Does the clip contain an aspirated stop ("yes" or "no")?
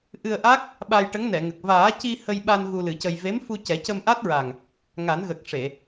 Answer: no